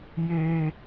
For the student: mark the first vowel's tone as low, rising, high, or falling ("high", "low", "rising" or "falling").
low